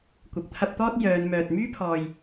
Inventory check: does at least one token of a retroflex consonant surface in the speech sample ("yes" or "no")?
no